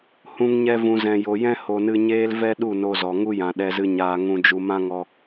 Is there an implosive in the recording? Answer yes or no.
yes